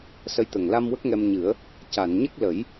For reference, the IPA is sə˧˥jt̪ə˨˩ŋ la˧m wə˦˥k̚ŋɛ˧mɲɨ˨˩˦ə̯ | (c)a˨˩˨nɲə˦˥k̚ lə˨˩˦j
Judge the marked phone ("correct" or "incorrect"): correct